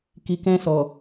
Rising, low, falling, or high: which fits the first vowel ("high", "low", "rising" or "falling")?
low